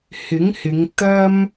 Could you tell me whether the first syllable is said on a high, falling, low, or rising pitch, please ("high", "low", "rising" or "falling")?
rising